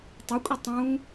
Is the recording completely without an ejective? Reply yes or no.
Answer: no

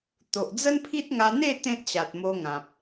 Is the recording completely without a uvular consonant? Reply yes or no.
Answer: yes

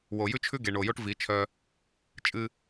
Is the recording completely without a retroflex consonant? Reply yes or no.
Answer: no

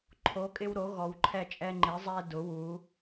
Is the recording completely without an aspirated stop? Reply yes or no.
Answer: no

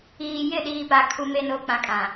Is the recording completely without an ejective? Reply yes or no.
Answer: no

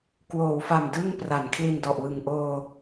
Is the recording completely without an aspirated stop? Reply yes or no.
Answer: no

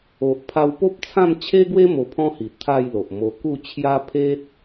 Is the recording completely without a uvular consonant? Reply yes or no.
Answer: yes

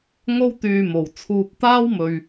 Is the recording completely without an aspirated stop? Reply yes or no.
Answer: no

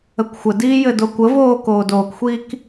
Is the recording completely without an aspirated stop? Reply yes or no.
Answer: yes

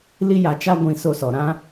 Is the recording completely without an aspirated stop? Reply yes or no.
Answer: yes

